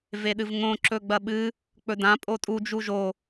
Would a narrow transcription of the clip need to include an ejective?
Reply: yes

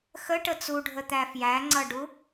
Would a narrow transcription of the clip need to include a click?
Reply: yes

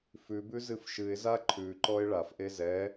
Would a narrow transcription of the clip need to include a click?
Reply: yes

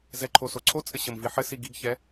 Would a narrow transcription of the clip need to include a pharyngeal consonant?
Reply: yes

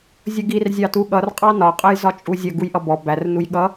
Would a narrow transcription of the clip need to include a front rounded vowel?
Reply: no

